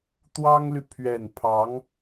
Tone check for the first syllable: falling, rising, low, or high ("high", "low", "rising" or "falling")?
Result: high